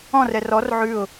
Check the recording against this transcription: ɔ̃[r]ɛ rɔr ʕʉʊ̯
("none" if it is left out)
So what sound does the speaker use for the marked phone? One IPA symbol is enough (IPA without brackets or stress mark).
r